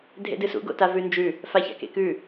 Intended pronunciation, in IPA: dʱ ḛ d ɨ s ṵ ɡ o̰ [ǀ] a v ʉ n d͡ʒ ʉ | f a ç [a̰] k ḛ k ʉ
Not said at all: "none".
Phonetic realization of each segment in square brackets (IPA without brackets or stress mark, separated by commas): t, a̰